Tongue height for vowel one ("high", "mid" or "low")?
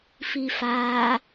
high